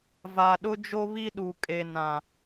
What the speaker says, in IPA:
va˨ɗʊ˦d͡ʒo˦ βi˦ɗu˨kʼe˨ nã˨

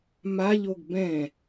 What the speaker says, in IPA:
maʎoɡ bɛ̃

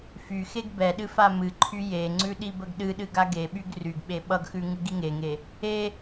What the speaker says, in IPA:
fy xeɡbɛɗɨ famɨǃʰy jeŋ͡ǀʉ ɗibəɡɗɨɗɨɡ aɡeɓyɡ ryɡɓe ɓʌɡxʉ ŋɨɡiŋeŋe | e

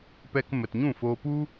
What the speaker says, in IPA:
pɛ˧k mə˨tɲũ˦˨fo˧ pu˦

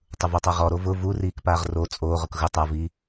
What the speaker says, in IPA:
tˤʊvotˤaʁɔ ɾovʊ vu riːkpaːʁro t͡sʼoːʁʊk ɣʊ tˤaviː

